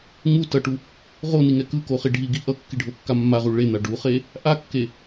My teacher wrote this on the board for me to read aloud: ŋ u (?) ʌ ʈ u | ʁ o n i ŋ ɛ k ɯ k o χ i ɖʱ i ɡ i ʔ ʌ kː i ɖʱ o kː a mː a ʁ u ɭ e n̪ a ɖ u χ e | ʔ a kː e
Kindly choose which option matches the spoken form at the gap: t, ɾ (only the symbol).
t